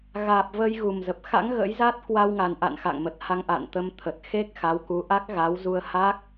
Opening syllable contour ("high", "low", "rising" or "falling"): low